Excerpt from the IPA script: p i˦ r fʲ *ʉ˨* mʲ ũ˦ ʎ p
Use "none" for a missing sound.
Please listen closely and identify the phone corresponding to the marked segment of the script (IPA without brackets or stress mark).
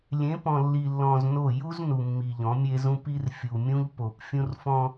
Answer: u˨